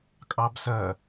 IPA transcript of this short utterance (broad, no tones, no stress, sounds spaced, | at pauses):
kʼ ɑ b s ɜ